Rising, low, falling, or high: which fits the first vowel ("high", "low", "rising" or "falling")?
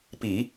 low